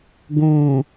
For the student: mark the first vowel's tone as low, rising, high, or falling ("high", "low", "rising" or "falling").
low